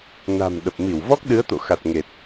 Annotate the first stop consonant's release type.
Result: implosive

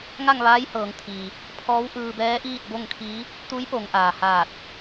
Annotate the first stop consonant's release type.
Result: aspirated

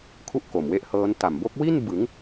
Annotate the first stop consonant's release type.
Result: aspirated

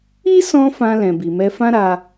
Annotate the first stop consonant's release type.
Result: plain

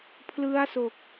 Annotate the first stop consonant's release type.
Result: aspirated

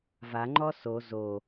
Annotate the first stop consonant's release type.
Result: click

